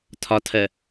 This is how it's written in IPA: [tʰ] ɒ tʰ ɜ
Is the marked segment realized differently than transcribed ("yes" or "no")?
no